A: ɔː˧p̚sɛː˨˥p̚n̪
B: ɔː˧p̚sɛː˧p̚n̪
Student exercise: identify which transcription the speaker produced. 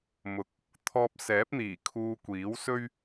A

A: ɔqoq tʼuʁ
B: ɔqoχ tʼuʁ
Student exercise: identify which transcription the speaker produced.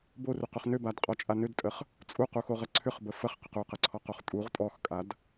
B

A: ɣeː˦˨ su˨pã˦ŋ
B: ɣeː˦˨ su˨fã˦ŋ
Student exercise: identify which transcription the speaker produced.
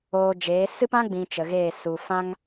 B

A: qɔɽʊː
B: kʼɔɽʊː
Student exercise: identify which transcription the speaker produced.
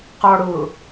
A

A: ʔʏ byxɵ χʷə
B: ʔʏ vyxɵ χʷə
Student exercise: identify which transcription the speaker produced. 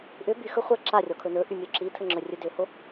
A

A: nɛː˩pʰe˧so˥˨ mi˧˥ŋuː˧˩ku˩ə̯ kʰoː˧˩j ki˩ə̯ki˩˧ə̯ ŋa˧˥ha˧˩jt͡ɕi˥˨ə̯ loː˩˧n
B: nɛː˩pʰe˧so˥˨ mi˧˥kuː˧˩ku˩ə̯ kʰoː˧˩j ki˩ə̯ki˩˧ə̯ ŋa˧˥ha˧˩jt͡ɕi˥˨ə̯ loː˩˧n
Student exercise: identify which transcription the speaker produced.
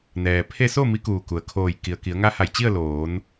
B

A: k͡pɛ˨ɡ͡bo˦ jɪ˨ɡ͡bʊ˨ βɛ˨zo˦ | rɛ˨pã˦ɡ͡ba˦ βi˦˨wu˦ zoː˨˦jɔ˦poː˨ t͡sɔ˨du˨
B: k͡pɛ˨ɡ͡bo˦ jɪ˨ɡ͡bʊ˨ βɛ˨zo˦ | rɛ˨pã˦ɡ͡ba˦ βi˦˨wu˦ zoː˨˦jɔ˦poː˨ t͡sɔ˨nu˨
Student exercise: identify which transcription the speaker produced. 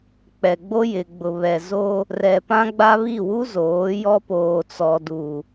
A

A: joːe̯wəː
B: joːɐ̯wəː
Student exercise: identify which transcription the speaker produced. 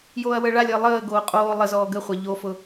B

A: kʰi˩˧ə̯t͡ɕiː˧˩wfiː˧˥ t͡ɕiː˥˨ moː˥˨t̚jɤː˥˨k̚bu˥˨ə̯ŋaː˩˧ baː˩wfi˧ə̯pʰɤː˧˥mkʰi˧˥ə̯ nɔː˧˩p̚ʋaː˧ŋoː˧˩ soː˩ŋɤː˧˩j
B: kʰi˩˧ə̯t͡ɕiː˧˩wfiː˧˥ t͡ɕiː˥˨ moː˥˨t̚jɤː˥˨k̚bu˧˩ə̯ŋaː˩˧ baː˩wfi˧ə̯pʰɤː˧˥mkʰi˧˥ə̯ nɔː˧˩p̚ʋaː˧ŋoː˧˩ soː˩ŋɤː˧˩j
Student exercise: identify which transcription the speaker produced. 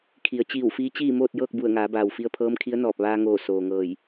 B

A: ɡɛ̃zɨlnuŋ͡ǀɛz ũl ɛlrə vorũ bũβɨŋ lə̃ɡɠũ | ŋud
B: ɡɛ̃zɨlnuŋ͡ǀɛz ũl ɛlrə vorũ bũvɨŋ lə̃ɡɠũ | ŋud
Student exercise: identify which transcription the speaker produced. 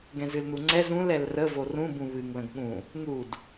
A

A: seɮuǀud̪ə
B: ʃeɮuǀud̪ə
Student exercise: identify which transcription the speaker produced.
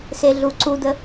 A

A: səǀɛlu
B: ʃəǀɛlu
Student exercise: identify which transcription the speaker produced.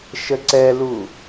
B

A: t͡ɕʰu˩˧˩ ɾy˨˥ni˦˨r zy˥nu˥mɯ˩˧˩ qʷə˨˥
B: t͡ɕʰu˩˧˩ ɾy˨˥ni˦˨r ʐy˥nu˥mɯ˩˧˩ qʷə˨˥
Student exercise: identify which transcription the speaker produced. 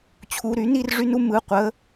B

